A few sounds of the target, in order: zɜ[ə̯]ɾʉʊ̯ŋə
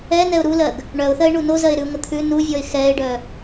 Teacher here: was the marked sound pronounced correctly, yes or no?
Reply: no